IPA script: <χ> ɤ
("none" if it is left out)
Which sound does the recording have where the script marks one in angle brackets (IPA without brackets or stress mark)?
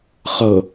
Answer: χ